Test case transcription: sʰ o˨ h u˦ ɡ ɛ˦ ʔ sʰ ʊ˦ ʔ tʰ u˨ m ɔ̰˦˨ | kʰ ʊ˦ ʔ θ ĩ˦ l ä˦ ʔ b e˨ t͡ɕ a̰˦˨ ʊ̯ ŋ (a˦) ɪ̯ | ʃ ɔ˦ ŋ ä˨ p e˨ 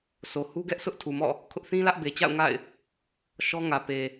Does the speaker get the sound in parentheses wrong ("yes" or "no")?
yes